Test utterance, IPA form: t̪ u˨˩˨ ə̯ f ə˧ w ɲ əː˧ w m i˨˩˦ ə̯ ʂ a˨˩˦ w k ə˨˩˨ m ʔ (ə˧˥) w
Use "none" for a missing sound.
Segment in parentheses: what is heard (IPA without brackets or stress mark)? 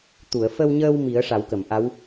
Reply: a˧˥